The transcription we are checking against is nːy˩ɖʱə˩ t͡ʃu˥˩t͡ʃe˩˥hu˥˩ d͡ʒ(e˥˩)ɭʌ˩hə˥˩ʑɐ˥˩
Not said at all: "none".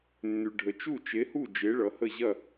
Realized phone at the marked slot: e˩˥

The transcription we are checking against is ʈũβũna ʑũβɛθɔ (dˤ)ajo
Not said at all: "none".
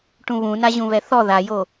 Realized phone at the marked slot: ð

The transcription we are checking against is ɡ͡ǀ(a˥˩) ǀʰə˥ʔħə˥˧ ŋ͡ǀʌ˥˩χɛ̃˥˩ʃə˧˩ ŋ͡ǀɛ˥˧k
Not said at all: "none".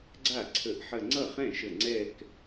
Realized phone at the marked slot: a˥˩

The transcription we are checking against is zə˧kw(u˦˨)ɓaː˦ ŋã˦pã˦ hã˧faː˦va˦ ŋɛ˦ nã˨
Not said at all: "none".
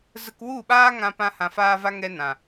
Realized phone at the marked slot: u˦˨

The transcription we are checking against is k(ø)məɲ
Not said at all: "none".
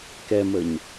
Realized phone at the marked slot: ɛ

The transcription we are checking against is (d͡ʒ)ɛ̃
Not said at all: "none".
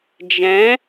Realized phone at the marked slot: d͡ʒ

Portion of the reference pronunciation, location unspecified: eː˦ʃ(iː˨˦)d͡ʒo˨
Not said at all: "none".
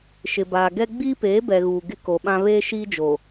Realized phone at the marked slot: iː˦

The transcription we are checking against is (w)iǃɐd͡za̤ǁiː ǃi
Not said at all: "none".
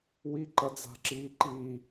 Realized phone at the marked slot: w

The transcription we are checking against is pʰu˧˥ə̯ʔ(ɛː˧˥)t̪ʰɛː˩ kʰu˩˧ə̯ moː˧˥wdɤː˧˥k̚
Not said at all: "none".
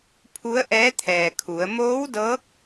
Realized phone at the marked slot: ɛː˧˥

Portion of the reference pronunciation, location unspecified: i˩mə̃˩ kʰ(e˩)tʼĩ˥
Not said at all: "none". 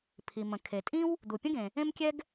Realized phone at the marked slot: e˩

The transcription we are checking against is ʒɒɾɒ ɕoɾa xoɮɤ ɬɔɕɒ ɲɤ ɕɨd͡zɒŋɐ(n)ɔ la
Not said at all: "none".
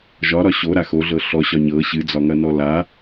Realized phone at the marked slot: n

